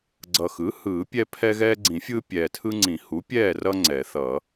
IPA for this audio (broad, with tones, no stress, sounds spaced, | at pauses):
ɡ͡ǀ ʌ˨˩ x ɯ˩˥ h ɯː˨˩˦ pʲ ɛ˦ pʰ ɛ˦ ɣ ɛː˦ ɡ͡ǀ ĩ˨˩˦ fʲ ɯː˦ pʲ ɛː˨˩ tʰ ɯ˦ ŋ͡ǀ ĩ˨˩˦ h u˩˥ pʲ ɛː˥˨ r ʌ˦ ŋ͡ǀ ɛ˨˩˦ θ ʌ˨˩˦